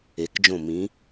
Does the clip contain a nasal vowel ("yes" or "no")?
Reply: yes